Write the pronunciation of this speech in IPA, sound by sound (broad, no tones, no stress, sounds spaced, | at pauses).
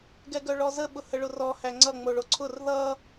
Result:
ɡ ɛ ɡ œ ɭ ɔ z ə ɓ ʊ h ə ɭ ʊ r ɔ h æ ŋ͡ǀ ʌ ŋ͡m o ɭ o ǀʰ ʊ r ð ʌ